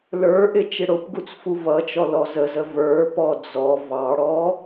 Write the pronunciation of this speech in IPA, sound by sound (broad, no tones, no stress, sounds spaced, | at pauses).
l ə˞ ʔ ɪ t͡ʃ ɪ ɽ ʊ p ɡ u t͡s f u v ʌ t͡ʃ ɔ l ɔ z ə z ə v ə˞ p ɔ d͡z ɔ v ɑ ɽ ɔ